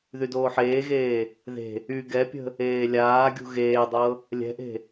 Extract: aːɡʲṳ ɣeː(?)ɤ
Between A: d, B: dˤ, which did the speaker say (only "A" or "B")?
B